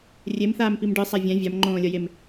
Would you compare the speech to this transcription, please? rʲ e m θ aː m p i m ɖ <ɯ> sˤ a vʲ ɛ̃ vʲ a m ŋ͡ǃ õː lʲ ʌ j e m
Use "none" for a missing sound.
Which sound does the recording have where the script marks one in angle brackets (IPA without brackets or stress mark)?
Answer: ɯ